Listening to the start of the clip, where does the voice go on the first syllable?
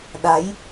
rising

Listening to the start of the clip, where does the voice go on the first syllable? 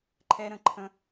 high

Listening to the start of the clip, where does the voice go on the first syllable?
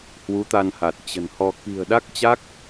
rising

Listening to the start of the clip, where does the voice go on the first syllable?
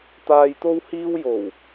low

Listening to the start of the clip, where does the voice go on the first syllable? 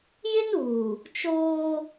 high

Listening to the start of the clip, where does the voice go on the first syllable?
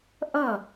falling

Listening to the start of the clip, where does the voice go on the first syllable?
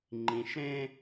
low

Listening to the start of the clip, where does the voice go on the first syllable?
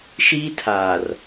high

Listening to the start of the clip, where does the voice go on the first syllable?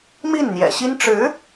falling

